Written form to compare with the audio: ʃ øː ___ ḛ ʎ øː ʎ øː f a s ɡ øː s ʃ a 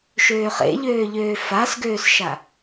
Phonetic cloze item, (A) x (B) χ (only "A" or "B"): B